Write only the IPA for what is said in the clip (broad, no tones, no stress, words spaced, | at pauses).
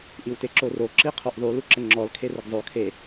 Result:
ʔiwteǁoro ǁiqʰoʔðˤu luǁəŋ͡ǁɔl kʰerəɡzˤo kʰe